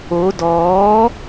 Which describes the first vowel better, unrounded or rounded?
rounded